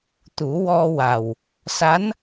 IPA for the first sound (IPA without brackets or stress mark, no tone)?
t̪